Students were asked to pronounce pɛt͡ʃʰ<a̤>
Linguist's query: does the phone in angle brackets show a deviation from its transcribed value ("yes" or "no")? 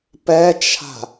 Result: no